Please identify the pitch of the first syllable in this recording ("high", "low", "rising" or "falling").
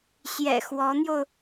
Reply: low